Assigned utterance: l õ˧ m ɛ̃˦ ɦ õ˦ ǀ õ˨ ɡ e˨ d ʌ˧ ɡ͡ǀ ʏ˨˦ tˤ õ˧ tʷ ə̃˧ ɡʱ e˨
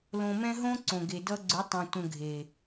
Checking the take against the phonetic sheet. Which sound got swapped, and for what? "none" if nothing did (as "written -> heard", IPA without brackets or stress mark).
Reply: none